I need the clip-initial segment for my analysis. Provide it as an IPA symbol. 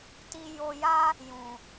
t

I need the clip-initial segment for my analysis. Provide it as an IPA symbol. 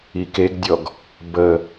i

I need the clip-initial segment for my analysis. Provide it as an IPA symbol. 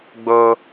ɡ͡b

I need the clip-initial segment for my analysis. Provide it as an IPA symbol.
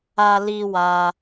a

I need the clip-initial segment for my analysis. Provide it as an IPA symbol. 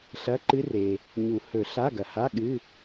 ɬ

